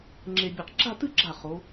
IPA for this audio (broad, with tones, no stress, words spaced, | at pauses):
ŋ͡ǁe˧bʲɨ˧˩q ɡ͡ǁa˥˧tɨ˥˧ɡ͡ǁa˧˩ χo˩˧